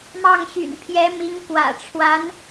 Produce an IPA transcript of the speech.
m ɑ˥˩ ŋ ɕ y̰˨˩ n pʰ j ɛ˧˥ m i˧˥ ŋ k w ä̰˨˩ ʈ͡ʂʰ w a˧˥ n

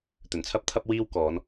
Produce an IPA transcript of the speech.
t̪ ɵ˨˩ n t͡sʰ ɐ˥ p̚ t̪ʰ ɐ˥ p̚ w iː˥ w k ɔː˨˧ n

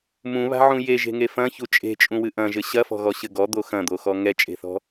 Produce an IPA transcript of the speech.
m ũ β a̤ ʕ ũ j e ʒ e̤ ŋ e f ɐ̃ ç u t͡ʃʼ e̤ t͡ʃʼ ũ w ɨ ʔ ɐ̃ ʒ ɘ ɕ ɐ f ɔ̤ ɣ ɔ ɕ ɘ ɡ ɔ d̪ o x ɐ̃ d̪ o x ɔ ŋ ɛ t͡ʃʼ e̤ θ ɔ̤

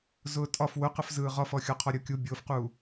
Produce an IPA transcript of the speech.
z ʊː tʼ ɒ f w ʊ q ə f z ɯː ʁ ɒ f ɔ xʲ ɔ qʰ ɔ ɾʲ ʊː kʲ u bʲ ʊː f q uː

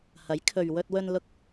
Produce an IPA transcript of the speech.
h ɐ˨˥ j kʰ ɵ˨ ɥ w ɵ˧ t̚ w ɵ˧ n l ʊ˧ k̚

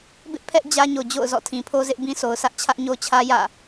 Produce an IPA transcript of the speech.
b ɪ˦ ʔ pʰ ɛ˦ ʔ d͡ʑ ä˦ ɲ o˨ d͡ʑ o̰˦˨ ʊ̯ z ɔ̰˦˨ tʰ ĩ˨ pʰ o˦ z ɪ˦ ʔ b ĩ˦ sʰ o˨ ʊ̯ sʰ ä˦ ʔ t͡ɕʰ ä˦ ʔ ɲ o˦ t͡ɕʰ ä˦ j ä̰˦˨

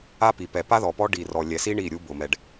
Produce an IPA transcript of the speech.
a˦ p i˨ p ɛ˨ p a˦ ð ɔ˨ p ɔ˦ ɖ i˨ r ɔ˨ lʲ ɛ˨ s i˦ ɳ i˦˨ ɾʲ u˦ b ʊ˨ m ɛ˨ ɖ

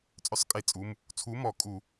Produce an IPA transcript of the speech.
t͡sʼ œ˨˥ sˤ kʼ e˧˩˧ t͡sʼ u˩˧˩ m | t͡sʰ u˨˥ m ɔ˧˩˧ kʼ u˧˩˧

